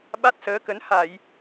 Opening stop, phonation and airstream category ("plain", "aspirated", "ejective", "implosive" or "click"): implosive